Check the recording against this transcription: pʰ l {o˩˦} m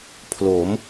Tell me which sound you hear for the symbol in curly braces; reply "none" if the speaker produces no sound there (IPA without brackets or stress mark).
o˩˦